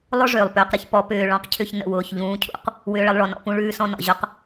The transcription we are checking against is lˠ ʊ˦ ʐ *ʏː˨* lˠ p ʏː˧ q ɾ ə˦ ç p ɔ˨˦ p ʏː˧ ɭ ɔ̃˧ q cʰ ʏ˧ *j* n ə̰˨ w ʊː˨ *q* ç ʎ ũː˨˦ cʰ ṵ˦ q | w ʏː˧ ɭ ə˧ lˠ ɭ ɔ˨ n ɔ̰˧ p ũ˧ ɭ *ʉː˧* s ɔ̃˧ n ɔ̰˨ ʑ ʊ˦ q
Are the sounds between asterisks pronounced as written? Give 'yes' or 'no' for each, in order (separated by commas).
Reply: yes, no, no, yes